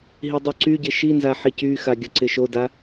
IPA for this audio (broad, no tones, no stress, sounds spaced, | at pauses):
ɦ i dˤ y ǀ y ɟ ɪ ʃ i n z a ħ i c y x a ɡʲ ʌ ǀ ɪ ʃ o d a